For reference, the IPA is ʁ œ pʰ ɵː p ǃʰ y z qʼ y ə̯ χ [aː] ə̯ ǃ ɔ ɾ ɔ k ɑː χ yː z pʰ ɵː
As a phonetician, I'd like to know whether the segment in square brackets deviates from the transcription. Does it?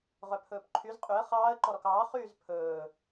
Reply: yes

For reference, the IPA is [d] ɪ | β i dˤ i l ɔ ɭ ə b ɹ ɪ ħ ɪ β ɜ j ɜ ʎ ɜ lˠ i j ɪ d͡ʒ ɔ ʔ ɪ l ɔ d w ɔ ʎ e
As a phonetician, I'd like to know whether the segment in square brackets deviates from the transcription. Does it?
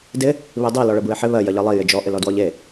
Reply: no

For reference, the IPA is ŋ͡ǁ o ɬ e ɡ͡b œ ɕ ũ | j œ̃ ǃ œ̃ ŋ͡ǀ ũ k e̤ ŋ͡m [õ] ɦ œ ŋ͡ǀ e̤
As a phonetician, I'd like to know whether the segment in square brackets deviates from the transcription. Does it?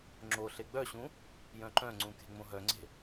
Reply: no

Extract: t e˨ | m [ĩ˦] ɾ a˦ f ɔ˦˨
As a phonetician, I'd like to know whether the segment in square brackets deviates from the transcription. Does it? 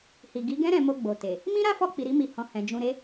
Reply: no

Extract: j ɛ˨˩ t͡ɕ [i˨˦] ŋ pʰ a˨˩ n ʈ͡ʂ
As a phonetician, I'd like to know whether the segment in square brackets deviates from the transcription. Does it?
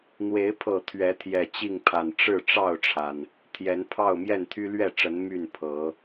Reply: yes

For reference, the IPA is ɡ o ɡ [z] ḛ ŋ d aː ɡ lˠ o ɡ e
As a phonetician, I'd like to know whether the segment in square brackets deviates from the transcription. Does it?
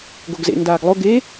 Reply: no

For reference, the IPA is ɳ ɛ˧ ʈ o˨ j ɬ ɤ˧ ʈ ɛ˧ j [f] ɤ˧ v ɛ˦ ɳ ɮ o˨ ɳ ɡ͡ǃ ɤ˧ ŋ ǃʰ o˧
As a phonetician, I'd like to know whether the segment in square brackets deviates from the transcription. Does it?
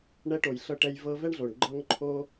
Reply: yes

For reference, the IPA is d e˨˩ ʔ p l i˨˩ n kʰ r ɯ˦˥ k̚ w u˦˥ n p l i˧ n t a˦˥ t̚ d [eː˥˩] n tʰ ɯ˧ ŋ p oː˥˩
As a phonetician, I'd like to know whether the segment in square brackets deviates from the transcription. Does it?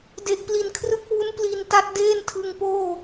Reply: no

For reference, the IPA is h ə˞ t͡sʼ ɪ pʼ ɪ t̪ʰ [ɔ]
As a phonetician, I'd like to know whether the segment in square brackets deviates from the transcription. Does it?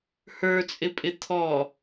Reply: no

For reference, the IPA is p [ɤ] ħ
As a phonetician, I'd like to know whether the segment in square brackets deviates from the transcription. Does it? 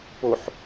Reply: yes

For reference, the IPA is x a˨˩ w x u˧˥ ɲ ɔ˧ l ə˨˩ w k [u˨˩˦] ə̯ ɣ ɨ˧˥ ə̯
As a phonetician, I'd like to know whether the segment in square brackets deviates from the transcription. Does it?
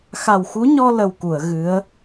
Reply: yes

